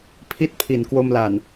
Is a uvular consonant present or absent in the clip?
absent